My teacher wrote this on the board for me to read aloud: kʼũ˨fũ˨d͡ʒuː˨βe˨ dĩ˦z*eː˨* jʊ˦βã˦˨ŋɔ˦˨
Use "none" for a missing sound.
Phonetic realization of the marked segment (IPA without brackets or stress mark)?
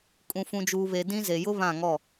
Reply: e˨